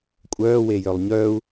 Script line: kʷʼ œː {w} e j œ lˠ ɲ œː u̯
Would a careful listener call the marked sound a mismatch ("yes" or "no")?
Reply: no